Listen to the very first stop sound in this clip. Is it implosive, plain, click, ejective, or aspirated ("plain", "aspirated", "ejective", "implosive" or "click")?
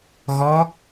plain